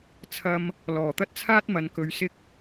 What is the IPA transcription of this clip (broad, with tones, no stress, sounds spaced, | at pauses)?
t͡sʰ ɐ˧ m | l ɔː˨˩ t̪ ɐ˥ t̚ t͡sʰ aː˥ t̚ m ɐ˨˧ n k ɵ˨˧ ɥ s ɪ˥ k̚